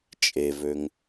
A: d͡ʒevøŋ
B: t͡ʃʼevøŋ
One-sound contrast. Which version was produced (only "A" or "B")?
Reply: B